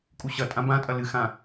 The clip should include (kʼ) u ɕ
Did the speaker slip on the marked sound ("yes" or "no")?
no